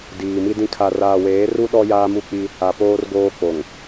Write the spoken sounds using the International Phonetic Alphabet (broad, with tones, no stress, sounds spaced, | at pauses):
d iː˨ m i˦ d ĩ˦ kʰ a˨ r aː˨ w eː˨˦ r u˦ ɗ ɔ˦ j aː˦ m u˦ k͡p i˦ | a˨ p oː˦ r ɡ oː˦ k͡p o˨ ŋ